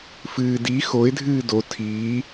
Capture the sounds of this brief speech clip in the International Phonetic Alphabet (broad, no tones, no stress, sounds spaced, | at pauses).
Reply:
f ɨː d i x o ɪ̯ dʱ ɨː d o tʰ iː